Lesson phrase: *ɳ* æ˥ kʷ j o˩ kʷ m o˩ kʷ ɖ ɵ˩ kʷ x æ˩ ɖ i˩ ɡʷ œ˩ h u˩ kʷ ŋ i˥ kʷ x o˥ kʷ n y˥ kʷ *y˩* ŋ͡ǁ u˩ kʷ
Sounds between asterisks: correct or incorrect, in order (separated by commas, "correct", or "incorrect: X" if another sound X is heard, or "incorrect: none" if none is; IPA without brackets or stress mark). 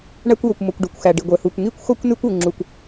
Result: correct, incorrect: u˩